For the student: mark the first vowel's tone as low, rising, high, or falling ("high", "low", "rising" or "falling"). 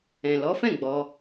low